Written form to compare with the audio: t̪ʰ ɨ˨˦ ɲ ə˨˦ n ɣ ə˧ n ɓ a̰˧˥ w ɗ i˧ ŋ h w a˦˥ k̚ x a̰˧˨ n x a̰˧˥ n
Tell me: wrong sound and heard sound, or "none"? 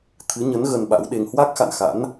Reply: i˧ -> e˧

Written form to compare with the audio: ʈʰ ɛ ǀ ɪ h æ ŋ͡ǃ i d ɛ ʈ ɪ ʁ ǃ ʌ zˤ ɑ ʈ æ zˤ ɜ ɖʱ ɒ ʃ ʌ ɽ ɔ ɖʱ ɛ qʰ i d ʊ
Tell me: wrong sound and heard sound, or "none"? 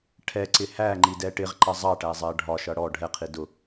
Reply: none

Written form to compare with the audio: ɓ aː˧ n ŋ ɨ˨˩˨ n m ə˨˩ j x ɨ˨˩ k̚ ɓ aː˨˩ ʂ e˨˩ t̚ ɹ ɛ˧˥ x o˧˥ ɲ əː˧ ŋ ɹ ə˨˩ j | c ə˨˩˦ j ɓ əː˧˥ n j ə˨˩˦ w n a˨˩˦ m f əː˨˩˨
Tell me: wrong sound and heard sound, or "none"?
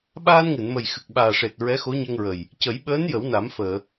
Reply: none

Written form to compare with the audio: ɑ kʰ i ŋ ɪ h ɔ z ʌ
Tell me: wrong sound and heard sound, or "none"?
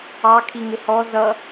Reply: none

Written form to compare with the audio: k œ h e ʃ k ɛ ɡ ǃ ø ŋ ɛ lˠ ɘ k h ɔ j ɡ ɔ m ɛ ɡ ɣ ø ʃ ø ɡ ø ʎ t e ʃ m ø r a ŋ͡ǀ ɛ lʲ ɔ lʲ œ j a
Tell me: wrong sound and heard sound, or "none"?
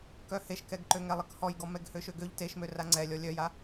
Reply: ɣ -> h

